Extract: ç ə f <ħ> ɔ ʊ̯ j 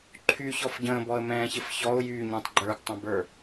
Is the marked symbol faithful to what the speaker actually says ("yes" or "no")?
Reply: no